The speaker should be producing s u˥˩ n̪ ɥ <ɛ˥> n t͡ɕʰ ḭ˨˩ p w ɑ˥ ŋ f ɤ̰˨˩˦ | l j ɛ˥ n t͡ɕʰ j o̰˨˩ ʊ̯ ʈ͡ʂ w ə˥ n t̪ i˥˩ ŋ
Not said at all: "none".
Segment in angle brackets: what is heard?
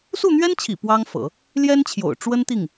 ɛ˥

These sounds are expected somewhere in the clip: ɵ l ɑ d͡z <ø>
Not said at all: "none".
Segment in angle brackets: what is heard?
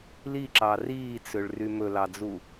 u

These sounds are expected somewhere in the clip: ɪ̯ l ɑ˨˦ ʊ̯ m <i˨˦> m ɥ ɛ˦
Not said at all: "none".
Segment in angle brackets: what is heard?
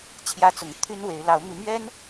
y˨˦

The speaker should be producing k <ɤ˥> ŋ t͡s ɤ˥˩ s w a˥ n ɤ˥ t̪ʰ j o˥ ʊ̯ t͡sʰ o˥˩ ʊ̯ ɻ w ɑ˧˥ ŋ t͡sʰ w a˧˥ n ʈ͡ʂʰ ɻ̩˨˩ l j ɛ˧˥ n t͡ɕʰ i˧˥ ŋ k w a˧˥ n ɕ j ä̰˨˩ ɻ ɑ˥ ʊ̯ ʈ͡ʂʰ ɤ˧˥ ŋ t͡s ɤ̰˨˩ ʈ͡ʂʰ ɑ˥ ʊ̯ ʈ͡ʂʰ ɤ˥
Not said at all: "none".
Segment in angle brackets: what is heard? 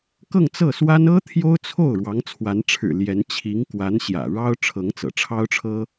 ɤ˥˧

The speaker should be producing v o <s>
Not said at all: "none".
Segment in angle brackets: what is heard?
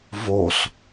s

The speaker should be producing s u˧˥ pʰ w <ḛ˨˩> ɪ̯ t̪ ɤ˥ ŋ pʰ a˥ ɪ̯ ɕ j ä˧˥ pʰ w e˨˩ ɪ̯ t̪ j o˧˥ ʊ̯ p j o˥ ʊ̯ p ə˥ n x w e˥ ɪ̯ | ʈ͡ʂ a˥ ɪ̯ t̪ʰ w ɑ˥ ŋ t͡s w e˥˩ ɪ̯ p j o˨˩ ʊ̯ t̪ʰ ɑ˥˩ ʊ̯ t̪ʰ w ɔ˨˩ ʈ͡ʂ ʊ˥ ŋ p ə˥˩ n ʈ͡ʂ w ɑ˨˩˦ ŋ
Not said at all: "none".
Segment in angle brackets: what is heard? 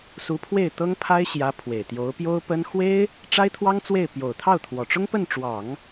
e˥˩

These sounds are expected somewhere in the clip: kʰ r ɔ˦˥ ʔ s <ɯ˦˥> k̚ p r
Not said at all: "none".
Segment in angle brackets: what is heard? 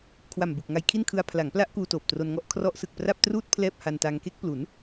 ɯ˨˩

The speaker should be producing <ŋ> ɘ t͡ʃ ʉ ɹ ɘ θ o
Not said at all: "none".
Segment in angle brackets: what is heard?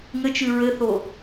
ŋ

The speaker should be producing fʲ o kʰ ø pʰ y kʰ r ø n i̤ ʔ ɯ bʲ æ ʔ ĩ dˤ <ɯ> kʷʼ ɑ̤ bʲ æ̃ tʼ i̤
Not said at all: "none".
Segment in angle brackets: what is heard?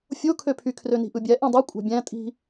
ɯ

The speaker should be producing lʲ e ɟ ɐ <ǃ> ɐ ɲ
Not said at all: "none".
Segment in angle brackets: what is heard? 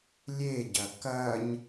k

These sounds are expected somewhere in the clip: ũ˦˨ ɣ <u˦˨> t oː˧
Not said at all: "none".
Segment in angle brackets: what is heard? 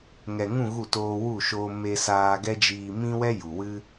u˦˨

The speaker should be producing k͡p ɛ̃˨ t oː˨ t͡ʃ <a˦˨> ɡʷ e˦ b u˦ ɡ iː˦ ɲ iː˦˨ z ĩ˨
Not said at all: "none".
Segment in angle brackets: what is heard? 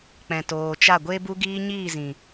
a˦˨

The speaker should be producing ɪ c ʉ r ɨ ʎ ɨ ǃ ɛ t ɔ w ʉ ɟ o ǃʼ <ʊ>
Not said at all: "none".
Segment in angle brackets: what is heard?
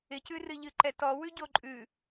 ʉ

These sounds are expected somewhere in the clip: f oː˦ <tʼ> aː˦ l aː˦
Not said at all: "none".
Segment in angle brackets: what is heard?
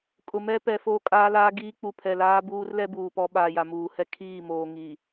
kʼ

